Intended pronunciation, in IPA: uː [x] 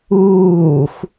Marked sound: correct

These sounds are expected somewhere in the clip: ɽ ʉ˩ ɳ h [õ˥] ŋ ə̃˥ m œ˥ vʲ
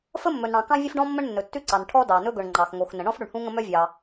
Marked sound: incorrect: ũ˥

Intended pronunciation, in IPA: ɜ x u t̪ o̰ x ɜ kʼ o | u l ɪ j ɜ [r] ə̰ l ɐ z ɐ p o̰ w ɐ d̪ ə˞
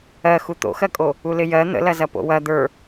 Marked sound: incorrect: n̪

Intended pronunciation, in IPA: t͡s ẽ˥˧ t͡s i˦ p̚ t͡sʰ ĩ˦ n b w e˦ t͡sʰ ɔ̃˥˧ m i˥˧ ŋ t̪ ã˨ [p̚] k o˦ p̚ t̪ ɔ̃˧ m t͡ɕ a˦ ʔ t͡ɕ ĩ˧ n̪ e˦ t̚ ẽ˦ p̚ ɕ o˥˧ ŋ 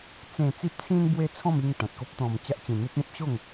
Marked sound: incorrect: t̚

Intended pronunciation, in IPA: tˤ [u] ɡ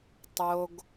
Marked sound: incorrect: o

